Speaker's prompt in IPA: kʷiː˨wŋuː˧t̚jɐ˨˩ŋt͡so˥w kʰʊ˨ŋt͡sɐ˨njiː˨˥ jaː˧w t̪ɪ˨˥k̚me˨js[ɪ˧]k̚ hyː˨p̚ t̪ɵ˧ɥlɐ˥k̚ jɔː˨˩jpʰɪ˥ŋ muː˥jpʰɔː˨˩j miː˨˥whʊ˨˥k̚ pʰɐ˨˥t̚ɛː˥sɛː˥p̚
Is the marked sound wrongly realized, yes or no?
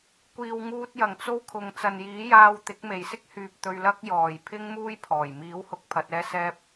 yes